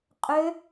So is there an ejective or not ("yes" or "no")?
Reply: yes